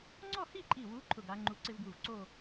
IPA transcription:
ŋ͡ǀ ɔ˥˧ h i˥˧ ǃʼ i˧˩ w u˨˦ ǃʰ ʊ˧˩ ɡ a˨˦ ŋ͡ǃ u˧˩ ǀ ɪ˥ v ɡ w u˧˩ v ǀ o˥˧

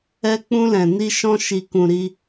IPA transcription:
ɛ˧ k͡p ũ˧ l ɛ̃˨ n i˧ ʃ ɔ̃˧ ʃ i˨ k ũ˨ ɾ i˧

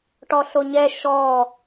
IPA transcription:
ʈ ɔ ɬ o ɲ ɛ ʃ ɔ

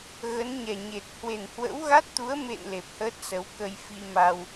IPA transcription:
ɣ ə˨˦ n ɲ ɛ˨˩ ɲ e˨˩ t̚ h w e˨˩ n h w ə̰˧˥ w ɣ a˦˥ t̚ t̪ u˨˦ ə̯ m ḛ˧˨ n l e˨˩ p̚ h əː˦˥ t̚ s ə˨˦ w k ə˧ j f i˧ m a˧ w

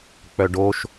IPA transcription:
k͡p œ ɖ o ʃ

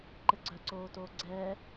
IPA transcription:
ǃ ɘ ɡ͡ǀ œ ǀ oː t oː ɡ͡ǀ ɛː

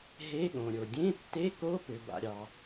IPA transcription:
ɦ e˧˥˧ ɠ õ˩ ɾʲ o˩ dʲ ẽ˧˥˧ tː e˧˥˧ k o˧˥˧ p ø˩ b a̰˩ ɾʲ ɑ˩

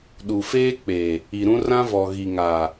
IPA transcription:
ɗ u˨ f eː˦ k͡p e˨ | i˨ ɾ ũ˦ r ã˦ v ɔ˨ ɣ i˨ ŋ a˨

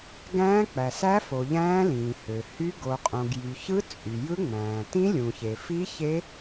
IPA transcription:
ɡ æ̃ː˦˥ k͡p æ˩ s æ˦˥ f o˩ ʎ æ̃ː˦˥ l ĩː˩ h ø˩ h y˦˥ ɡ o˩ qʼ õ˩ ɡ j y˩ ç ɯ˦˥ t͡sʼ y˩ j ɯ˦˥ ŋ͡m æ̃ː˩ t ĩ˦˥ lʲ ũ˩ ç e˩ f i˦˥ ç e˦˥

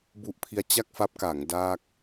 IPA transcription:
b u˦˥ ʔ pʰ i˦˥ a̯ t͡ɕ a˥˩ k̚ f a˦˥ p̚ k a˩˦ ŋ d aː˥˩ k̚

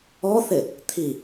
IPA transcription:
ɔ θ ɪ | t̪ʰ i

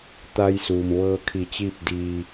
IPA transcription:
t̪ a˧ j s uː˩ m ʋ ɤː˧ kʰ i˧˩ t͡ɕ iː˥˨ p̚ d iː˧

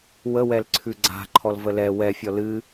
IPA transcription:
w ə w ɛ l ǀʰ ʉ ɡ͡ǀ a̤ ǃʰ ɔ l v ə l ɛ w ɛ fʲ ɔ l ɨ

